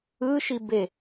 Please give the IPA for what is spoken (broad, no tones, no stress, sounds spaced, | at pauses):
ɯ ʃ i b e